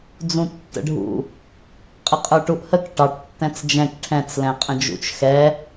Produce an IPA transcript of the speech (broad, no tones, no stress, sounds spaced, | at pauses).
d͡z ũ tː ə̰ ɖʱ ṵ | qʼ ə qʼ ə˞ ʈ u ʔ h ə k ʈ ɑ ʈ tː ɛ̃ t͡s d͡ʒ ɛ̃ k ʈʰ ɛ̃ t͡s l ɛ̃ qʼ ə̃ d͡ʒ ṵ t͡ʃ x ɛ